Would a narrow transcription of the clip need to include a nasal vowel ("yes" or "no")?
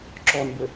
no